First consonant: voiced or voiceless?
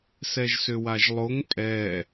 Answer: voiceless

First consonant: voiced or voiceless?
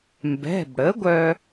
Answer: voiced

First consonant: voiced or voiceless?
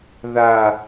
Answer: voiced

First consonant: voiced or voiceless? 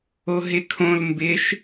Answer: voiced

